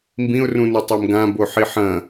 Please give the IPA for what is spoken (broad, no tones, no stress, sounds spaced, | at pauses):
m b ĩ ʊ̯ r ũ n u tˤ e m ɡ ã b o ħ i ħ ɐ̃